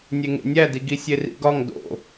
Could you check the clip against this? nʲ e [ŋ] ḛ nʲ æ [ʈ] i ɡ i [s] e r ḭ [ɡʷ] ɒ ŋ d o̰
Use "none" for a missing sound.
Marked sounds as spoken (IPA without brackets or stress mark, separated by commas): ŋ, d, sʲ, ɡ